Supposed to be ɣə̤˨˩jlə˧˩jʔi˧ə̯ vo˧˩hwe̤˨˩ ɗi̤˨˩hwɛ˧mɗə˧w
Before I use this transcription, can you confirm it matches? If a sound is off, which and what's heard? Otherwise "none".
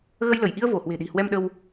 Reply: ə̤˨˩ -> ə˧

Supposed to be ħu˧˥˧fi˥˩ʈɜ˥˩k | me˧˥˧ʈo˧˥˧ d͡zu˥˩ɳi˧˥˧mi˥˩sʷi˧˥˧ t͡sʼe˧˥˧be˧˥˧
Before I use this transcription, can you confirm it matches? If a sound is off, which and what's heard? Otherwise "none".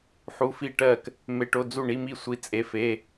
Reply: b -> f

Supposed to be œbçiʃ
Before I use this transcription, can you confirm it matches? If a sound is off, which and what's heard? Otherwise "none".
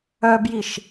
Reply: ç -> j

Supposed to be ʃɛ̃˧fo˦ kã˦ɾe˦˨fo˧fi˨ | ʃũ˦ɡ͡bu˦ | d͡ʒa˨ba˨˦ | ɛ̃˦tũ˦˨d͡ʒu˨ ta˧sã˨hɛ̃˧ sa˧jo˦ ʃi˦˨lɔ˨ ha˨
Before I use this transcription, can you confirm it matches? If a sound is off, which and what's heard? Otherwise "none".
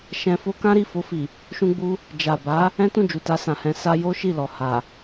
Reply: e˦˨ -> i˦˨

